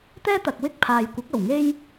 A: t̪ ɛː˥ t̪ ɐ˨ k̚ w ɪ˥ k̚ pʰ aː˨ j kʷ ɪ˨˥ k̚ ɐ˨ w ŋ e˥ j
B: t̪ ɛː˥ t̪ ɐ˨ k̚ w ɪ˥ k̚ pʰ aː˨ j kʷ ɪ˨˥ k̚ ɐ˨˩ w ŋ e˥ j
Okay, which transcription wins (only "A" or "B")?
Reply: B